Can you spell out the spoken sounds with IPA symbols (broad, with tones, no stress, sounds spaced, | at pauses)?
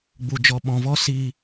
ɡ͡b u˧ d͡ʒ ɔ˧ ɓ ɔ̃˧ v ɔ˦ s iː˧